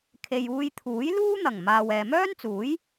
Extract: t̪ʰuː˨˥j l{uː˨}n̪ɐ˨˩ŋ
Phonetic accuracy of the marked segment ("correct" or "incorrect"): incorrect